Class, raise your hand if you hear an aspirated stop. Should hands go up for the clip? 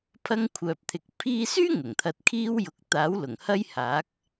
yes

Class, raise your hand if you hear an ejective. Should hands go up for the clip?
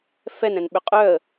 yes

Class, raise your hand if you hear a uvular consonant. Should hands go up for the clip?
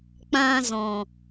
no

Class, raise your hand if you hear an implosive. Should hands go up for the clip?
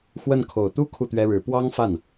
no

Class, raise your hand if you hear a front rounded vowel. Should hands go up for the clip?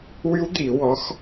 yes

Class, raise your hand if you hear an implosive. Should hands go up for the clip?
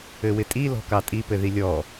no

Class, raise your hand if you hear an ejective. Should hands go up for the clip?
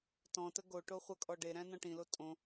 yes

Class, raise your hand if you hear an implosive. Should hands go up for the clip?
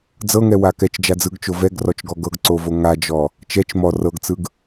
no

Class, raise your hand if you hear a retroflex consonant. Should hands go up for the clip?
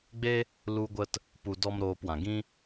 no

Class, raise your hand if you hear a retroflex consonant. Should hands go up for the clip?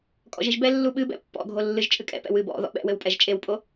no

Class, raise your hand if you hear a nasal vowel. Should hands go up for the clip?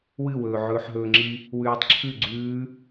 no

